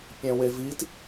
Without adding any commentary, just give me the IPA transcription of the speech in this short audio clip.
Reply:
pʲɛ̃wevit

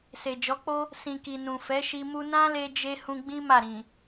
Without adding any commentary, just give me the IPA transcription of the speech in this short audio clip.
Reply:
se˨d͡ʒɔ˨˦k͡po˦ | sĩ˨ki˨ nũ˨fɛ˨˦ʃi˧ mu˧nã˦le˧d͡ʒe˧ hũ˧ɡ͡bĩ˦ ma˦˨ɾĩ˨

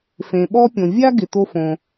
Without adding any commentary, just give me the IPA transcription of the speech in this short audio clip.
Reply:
fẽ˩ɓɔ˥pʲõ˩ vʲa˥ɡɪ˩ to˥fõ˩

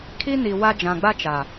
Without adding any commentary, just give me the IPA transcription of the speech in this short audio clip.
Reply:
kʰi˦ni˨ wa˦ d͡ʒã˨ɡ͡ba˦t͡ʃa˨

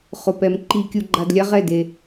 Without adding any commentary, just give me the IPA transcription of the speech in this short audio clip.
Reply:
χʊ˨pɛ˨m ǃi˧ kʲu˧ɡ͡ǃa˧dlʲa˦ ʁɛ˦˨de˧

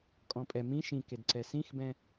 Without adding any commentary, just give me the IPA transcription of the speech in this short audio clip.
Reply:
kʼɔ̃pʼɛ mĩ ʃĩ kedǀɛsĩxbɛ̃

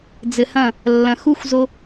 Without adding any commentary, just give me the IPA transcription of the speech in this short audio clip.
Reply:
d͡zɘ˨hɐ̃˦˨ | lːɐ̃˨xu˦xʷzo˦

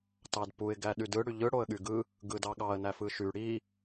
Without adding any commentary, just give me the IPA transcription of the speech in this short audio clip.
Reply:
tɑdpuɪ̯ ɡæɗydɯ ɽyʎɯ ɽoə̯ɠyɡɯ | ɡɯdɑɠɑə̯ næfɯʃy ɽi

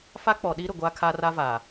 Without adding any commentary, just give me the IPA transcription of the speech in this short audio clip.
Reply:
fa˦k͡pɔ˨ɗiː˦ɾʊ˨ ɡʷa˦kʰa˦ra˦va˨

